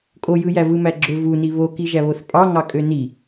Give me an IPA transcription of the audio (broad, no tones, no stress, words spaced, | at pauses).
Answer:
kʼojɯjæ vɯmæɡ͡ǁø vuni βokiʒæβoθ pʼɑ ŋɑkʼøni